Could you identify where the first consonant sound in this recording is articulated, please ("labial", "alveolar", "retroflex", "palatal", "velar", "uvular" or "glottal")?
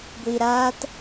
velar